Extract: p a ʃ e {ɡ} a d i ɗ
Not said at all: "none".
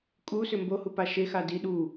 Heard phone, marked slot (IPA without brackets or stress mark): x